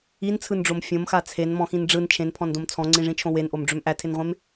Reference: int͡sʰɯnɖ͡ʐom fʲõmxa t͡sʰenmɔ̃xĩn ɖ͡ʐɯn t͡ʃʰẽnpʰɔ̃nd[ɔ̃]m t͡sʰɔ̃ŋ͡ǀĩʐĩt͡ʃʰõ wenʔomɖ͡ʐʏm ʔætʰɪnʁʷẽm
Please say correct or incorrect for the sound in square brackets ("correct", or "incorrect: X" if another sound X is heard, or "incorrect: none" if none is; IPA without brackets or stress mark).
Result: incorrect: õ